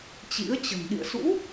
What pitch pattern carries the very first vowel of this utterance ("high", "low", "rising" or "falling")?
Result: rising